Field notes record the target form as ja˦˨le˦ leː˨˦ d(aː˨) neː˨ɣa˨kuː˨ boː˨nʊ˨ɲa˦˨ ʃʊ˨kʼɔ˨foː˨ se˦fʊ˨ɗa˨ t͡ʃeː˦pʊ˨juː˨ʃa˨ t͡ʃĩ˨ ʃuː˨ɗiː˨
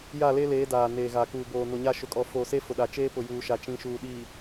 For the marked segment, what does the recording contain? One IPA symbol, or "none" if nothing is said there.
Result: aː˨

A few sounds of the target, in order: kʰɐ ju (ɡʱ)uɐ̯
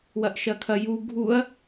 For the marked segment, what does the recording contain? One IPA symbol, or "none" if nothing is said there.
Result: ɡʱ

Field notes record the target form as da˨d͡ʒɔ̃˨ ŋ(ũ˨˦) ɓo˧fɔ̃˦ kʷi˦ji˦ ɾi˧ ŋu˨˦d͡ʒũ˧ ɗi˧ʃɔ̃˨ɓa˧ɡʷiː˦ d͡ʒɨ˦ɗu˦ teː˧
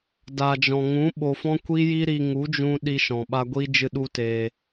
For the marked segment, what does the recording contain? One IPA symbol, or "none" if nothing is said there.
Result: ũ˨˦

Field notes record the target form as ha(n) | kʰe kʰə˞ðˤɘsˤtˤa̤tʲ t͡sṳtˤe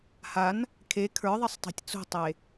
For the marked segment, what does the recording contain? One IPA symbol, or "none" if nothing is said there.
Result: n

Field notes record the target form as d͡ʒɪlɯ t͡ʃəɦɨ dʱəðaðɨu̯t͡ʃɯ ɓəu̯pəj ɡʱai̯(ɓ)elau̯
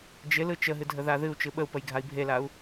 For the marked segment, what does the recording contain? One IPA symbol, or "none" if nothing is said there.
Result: bʱ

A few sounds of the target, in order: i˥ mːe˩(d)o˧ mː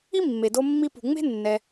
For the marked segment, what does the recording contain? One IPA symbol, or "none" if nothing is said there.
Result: d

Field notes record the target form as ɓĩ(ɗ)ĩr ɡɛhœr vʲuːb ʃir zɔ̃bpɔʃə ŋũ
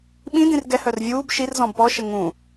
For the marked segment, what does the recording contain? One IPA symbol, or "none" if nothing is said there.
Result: d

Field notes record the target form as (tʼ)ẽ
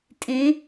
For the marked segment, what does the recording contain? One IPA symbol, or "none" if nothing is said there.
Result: tʼ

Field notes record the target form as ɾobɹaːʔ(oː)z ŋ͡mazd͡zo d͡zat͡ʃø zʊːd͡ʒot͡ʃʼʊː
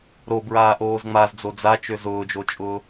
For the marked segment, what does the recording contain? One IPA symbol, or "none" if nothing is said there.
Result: oː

